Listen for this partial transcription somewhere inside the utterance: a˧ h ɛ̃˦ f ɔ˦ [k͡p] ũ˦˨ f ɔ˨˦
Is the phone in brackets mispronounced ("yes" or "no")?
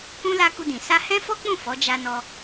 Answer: no